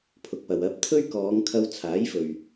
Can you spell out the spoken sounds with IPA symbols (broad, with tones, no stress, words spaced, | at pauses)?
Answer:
pʰʊ˨k̚pɐ˨w ɐ˧p̚ t̪ʰɵ˥ɥkɔː˨˧ŋ kʰɐ˧wt͡sʰaː˨˥jfɵ˨ɥ